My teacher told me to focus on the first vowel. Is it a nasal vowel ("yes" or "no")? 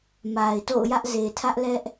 no